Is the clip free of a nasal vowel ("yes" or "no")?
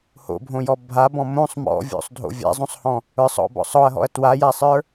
no